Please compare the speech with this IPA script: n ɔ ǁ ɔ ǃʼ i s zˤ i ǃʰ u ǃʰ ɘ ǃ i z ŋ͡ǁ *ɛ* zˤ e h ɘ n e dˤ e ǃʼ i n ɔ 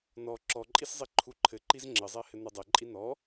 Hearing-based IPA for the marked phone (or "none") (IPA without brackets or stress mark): ɘ